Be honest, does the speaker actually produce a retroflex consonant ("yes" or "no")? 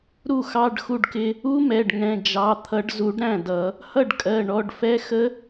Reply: yes